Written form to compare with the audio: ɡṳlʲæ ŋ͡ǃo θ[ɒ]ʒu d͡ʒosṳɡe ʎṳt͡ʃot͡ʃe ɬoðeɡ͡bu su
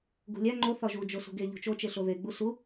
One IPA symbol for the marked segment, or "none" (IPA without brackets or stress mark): ɒ